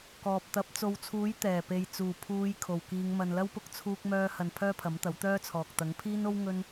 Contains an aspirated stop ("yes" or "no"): yes